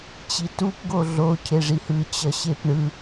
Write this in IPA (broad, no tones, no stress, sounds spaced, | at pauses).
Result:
t͡ɕ i t u p ɡ o ɮ o cʰ e ʐ i h ɯ t͡ɕ ʌ ɕ e p ɳ ɯ